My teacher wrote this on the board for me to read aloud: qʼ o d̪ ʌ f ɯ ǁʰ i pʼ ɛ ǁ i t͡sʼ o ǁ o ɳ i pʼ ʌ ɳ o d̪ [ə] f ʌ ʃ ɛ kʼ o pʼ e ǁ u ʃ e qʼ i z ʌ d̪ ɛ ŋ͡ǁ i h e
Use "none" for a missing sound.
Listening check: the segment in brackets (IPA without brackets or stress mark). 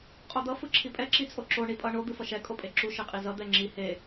ɯ